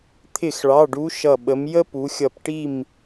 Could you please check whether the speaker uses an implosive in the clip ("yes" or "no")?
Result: yes